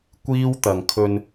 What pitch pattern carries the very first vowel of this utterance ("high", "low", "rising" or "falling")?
high